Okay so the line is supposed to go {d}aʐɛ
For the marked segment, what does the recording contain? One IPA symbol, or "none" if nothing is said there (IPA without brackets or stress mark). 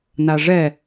n